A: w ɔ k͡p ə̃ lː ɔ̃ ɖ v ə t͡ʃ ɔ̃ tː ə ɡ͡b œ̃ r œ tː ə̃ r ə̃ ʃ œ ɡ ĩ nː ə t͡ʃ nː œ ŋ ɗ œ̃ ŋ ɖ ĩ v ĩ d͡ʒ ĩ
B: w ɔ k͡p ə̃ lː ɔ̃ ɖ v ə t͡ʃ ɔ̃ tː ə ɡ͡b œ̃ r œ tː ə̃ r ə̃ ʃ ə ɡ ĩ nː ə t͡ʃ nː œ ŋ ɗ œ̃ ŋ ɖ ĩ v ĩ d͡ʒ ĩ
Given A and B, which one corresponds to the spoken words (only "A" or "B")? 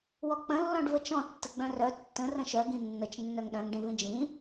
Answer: A